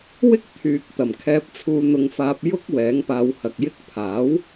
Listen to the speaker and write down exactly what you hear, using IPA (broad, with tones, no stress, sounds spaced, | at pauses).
w ɪ˥ k̚ t̪ʰ yː˨ k̚ t̪ ɐ˨˩ m kʰ ɛː˧ p̚ t͡sʰ uː˧ n̪ ʊ˧ ŋ f aː˧ p̚ j ʊ˧ k̚ w ɛː˨˥ ŋ p aː˧ w h ɐ˨ k̚ j ɪ˥ k̚ pʰ aː˨˥ w